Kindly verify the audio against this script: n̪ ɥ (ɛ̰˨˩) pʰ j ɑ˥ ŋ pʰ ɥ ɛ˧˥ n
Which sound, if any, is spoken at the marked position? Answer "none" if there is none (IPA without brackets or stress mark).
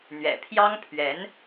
ɛ̰˨˩